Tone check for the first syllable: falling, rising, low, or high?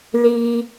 high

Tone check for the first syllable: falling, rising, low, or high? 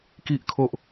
low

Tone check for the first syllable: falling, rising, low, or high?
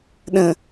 low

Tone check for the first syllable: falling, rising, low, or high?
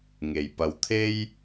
low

